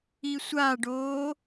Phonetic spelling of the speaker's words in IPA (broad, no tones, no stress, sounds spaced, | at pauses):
i sʷ a ɖ oː